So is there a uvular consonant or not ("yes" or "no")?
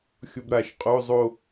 yes